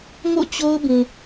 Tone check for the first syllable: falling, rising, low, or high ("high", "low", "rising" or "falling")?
falling